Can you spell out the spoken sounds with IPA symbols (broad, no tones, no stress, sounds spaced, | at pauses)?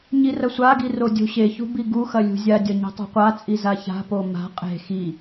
ɲ i r ɐ sʷ a ɡ i r o dʲ o̤ ɕ e ç ṳ b i ɡ u x ɐ lʲ ṳ zʲ a dʲ ɐ ɲ i̤ tˤ ṳ qʷ a t͡sʼ i z a ç a̤ p o m a̤ qʼ e̤ x i